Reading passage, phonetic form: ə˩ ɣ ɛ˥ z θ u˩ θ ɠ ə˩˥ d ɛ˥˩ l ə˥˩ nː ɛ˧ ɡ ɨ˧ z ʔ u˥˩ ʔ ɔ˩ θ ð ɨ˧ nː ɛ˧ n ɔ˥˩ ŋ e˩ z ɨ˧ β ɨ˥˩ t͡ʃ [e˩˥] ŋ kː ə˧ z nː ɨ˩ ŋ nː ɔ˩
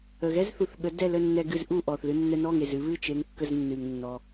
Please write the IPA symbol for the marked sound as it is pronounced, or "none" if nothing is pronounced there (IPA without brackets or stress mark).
e˩˥